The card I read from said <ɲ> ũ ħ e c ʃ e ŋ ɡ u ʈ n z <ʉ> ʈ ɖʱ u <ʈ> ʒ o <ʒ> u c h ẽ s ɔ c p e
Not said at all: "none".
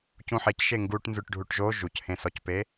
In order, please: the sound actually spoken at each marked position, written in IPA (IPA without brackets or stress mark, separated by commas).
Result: c, ʉ, ʈ, ʒ